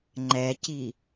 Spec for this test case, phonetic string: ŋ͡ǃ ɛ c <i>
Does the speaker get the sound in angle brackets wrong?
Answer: no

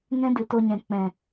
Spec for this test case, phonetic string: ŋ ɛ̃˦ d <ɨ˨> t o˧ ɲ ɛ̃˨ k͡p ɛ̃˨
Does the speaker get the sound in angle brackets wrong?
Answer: no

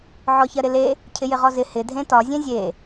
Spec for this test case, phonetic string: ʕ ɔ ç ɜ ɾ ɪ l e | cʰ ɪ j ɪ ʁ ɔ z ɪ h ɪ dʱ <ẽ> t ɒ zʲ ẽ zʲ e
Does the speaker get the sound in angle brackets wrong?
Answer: no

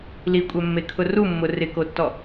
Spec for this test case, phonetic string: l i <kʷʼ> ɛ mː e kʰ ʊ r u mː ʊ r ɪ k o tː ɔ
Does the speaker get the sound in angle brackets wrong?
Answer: no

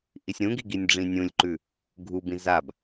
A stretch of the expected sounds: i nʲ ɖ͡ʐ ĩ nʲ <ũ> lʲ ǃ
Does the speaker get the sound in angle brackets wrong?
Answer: no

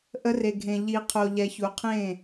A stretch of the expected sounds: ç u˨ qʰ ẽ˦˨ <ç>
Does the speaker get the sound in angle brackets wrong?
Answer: yes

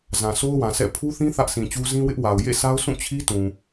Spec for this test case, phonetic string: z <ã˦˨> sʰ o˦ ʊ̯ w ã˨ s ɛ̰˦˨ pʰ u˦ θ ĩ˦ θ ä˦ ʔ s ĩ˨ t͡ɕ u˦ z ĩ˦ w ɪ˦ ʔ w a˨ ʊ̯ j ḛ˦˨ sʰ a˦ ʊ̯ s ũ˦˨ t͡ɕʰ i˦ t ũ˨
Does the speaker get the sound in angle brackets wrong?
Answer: yes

